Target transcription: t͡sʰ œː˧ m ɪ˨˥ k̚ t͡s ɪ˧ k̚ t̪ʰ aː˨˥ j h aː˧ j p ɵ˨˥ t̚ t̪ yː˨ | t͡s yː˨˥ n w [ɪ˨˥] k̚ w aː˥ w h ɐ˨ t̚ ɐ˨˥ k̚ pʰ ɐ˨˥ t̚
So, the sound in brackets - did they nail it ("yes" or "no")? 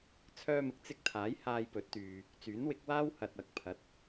yes